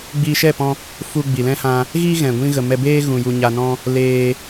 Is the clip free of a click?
yes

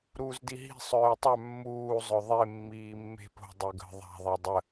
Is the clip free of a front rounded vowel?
no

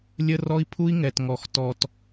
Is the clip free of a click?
yes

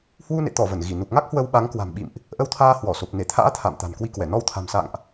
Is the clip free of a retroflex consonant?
yes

